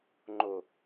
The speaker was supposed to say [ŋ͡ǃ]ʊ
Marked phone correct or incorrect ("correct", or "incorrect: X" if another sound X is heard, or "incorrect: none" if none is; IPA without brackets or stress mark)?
correct